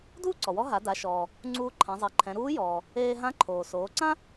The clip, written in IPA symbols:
d uː˥ ǀ ɔ˩ w ɔ˧˥ ɦ a˩˧ d a˩˧ ʃ ɔː˩ | ŋ͡ǀ uː˧ ǃʰ ã˩˧ zˤ e˩˧ ǃʰ ɛ̃˩˧ ɾ uː˧˥ j ɔː˩ | eː˧ ɦ ã˧˥ ǃʰ oː˩ s oː˩˧ ǀ ã˥

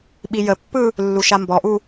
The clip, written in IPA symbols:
ɓ i j ə pː ɯ | lː u ʃ a m b ɔ ʔ u

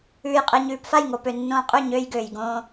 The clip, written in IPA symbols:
ʉː˧ j qʼ e˧ ɲ ʉː˧ p f a˦˨ j ŋ o˨ p ø˨ nː õː˧ qʼ ʉ˦˨ ɲ øː˧ j ɡ øː˨ j ɡ õː˧

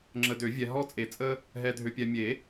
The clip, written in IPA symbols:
ŋ͡ǁ ə˨ d ø˨˩˦ vʲ ɛ˨ ɦ ɔ˥ t͡sʼ e˨ t͡sʼ ə˥ | ɦ ɛ˨ dʱ ø˨ pʲ ɛ˨ mʲ e˨˩˦

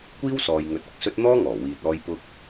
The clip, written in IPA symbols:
kʷ iː˥ w s ɔː˨ j ŋ ɵ˨˥ t̚ ʊ˨ k̚ s ɵ˧ t̚ n̪ ɔː˥ ŋ ɔː˨˩ w iː˨ t̚ ɔː˧ j p ʊ˧ k̚

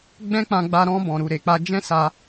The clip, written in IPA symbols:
ɡ͡b ɛ̃˦ k͡p ã˧ ɡ͡b a˧ ɾ ɔ̃˧ b ɔ̃˨ ɾ u˨ ɾ e˨ k͡p a˧ d͡ʒ ɛ̃˦ s a˧

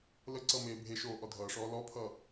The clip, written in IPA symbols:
l ə ǀ ʌ m eː bʱ e ʃ oː ʔ ɔ dʱ ʌː ʂ ɔː l ɔ pʰ ʌː

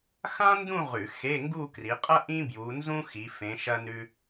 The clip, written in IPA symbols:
x ã˥ n d ũ˥˧ ʁ ʉ˧˩˧ x e˧˥˧ ŋ ɡ u˥˧ k r i˨˦ qʼ ɐ˥ ʔ ĩ˥ b j u˨˦ n z ũ˥ x i˨˦ f ẽ˨˦ ʃ ɐ˥ n ʉ˥

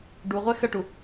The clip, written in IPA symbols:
ɖ u ʁʷ ɛ x ə ʈ u

